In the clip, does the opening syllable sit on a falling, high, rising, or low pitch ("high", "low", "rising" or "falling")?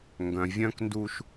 low